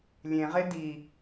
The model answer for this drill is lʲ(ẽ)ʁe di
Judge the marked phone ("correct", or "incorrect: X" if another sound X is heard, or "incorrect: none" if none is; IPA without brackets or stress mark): correct